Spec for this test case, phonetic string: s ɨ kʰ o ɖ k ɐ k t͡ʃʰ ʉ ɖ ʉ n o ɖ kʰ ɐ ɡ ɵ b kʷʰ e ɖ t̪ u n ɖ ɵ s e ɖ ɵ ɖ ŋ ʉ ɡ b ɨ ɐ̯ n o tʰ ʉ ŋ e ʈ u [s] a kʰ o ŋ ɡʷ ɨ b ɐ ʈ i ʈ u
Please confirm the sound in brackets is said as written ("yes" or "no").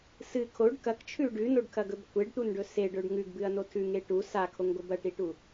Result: yes